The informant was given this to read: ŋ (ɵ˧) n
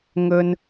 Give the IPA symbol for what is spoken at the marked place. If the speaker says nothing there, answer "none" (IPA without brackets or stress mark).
ɵ˧